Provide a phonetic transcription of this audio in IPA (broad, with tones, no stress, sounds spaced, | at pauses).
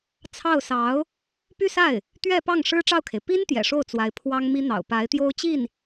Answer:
t͡sʰ ɑ˥˩ ʊ̯ s ɑ˧˥ ʊ̯ | p y˥˧ s a˥˩ ɪ̯ | t̪ ɥ ɛ˥˧ p ɑ˥˩ ŋ ʂ ɻ̩˥ ʈ͡ʂ ɑ˥˩ ʊ̯ kʰ e˩ ɪ̯ p i˥ n t̪ j ɛ̰˨˩ ʂ o˥˩ ʊ̯ t͡s w a˧˥ ɪ̯ pʰ w ɑ˥ ŋ m i˥ n̪ ɑ̰˨˩ ʊ̯ p a˧˥ ɪ̯ t̪ j o˥ ʊ̯ t͡ɕ i˥˩ n